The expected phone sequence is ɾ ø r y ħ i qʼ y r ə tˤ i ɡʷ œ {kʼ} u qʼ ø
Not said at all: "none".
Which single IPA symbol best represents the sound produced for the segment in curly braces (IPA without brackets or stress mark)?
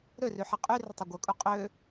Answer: kʼ